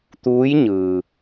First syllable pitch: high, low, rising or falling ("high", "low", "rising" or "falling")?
rising